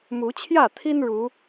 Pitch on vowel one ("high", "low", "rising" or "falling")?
rising